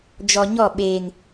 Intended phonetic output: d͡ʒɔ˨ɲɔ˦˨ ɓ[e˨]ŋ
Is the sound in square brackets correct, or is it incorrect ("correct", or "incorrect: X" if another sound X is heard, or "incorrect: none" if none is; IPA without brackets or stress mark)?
incorrect: eː˨